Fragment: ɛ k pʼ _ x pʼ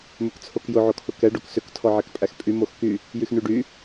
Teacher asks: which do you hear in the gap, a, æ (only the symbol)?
æ